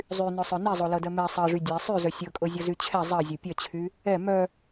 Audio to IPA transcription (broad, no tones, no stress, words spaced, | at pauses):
zˤynœsˤœ nizˤolɤdɜ mɛ sˤɜʐy dʲɛ sˤyzœ sʲɤkʼɤzʲɤzy t͡ɕʰɛ zˤɜzʲo pʲɜt͡ɕʰy | ɛ mœ